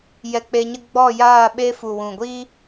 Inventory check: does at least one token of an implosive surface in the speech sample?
yes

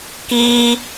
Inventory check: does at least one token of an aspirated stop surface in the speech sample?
no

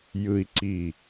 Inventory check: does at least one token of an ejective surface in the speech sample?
no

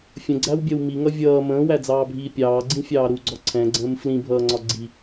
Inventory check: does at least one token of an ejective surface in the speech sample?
no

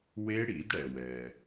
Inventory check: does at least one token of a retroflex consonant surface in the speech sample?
yes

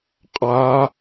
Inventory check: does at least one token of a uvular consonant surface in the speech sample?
yes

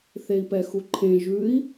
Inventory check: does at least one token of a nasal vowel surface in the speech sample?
yes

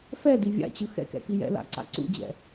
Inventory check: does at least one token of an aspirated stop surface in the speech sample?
no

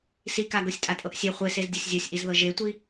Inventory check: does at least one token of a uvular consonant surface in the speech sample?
yes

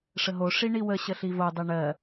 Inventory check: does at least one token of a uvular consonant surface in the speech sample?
no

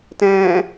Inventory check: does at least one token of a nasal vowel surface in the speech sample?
yes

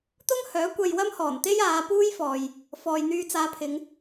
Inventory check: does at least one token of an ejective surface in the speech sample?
no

